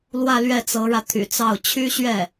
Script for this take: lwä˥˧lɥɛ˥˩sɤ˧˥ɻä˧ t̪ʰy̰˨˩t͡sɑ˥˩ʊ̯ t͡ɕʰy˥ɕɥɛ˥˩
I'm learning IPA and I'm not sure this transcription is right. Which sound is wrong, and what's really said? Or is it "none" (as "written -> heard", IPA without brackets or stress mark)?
s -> t͡s